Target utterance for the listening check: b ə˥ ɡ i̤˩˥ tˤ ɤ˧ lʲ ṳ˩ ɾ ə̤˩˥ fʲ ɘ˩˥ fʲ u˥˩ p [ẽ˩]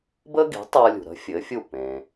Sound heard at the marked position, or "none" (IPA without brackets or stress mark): ẽ˩